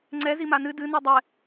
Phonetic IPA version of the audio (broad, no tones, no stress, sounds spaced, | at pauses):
ŋ͡ǀ ɛ z i m a n ɨ d ɨ n u dˤ ɛ